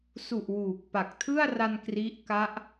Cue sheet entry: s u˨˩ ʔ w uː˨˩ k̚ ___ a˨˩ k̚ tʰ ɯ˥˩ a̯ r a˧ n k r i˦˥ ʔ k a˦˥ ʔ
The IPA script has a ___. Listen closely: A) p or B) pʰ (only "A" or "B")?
A